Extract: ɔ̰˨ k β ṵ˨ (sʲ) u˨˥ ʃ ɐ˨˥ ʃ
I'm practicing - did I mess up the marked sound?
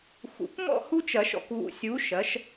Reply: no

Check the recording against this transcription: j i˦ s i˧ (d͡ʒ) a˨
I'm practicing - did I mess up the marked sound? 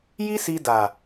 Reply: yes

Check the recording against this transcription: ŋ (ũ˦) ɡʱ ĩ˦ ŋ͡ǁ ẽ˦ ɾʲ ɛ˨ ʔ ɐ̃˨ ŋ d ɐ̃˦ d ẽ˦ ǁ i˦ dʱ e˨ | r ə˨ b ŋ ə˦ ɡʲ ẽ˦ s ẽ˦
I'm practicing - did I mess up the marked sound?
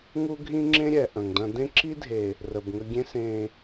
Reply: yes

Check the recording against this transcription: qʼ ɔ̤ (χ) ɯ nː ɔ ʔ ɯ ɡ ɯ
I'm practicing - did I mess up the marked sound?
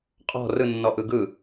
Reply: yes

